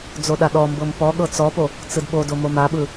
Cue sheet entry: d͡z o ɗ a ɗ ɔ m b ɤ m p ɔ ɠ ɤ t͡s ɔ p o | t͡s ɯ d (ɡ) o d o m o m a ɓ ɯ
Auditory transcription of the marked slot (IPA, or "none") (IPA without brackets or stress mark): ɓ